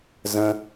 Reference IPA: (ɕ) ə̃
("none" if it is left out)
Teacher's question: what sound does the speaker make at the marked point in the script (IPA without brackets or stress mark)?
z